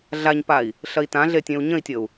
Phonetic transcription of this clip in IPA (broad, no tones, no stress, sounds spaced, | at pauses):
ɮ a ɲ p a i̯ | ɬ ɐ i̯ t ã ɮ e tʲ ẽ u̯ ɲ ə̃ i̯ tʲ ə u̯